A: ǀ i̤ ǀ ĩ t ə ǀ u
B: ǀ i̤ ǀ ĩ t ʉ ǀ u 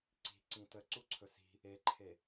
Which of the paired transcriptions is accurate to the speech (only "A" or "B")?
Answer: A